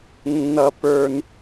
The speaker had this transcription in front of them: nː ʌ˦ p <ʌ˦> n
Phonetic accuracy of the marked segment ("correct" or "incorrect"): incorrect